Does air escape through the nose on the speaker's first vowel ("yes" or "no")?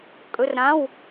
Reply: no